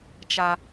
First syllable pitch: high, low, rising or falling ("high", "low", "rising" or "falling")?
low